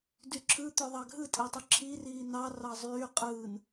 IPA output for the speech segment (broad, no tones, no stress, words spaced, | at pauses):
dyǁʰɯ t̪øðˤɑɡʱɯ tʼetˤɯǁʰiriː nɑ rɑzˤyː qʼɯːn